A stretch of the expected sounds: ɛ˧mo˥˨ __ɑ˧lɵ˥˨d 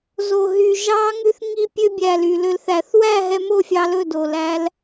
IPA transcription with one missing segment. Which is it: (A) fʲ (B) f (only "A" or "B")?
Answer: A